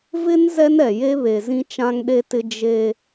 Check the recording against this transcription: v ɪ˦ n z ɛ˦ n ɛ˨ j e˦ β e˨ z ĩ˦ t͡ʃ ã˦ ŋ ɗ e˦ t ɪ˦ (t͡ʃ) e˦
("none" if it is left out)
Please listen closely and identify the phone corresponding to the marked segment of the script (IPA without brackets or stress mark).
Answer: d͡ʒ